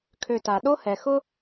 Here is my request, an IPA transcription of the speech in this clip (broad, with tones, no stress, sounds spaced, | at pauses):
kʰ ø˨ t a˩ ɗ o˥ h ɛ˩ x ʊ˦